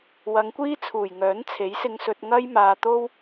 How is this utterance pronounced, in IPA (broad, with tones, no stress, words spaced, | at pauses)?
wɐ˨˧ŋkʷiː˥t͡sʰuː˨˩j ŋœː˨˥n t͡sʰe˨˥jsɪ˧ŋsɵ˧t̚ ŋɐ˥jmaː˧t̪o˥w